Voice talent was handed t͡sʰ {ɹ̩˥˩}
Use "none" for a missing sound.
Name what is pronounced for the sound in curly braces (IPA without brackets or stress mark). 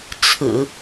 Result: ɹ̩˨˩˦